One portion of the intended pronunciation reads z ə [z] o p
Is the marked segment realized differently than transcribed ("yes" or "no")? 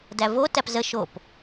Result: yes